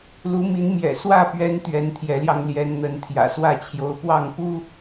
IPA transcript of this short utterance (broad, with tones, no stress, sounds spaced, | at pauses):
l u˨˦ m i˨˦ n m j ɛ̰˨˩ s w ä˥˨ p ɥ ɛ˨˦ n t̪ ɥ ɛ˨˦ n t̪ʰ j ɛ˨˦ l j ɑ˧ ŋ l j ɛ˨˦ n n̪ ə˨˦ n t̪ʰ j ä̰˨˩ s w ä˥˨ t͡ɕʰ j o˨˦ ʊ̯ p w ɑ˥˨ ŋ p u˦